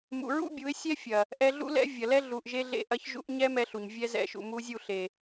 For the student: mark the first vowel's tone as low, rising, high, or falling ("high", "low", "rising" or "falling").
low